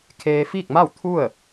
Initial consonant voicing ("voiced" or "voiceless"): voiceless